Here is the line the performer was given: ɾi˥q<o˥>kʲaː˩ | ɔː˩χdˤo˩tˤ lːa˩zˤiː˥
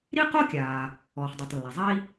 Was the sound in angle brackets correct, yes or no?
yes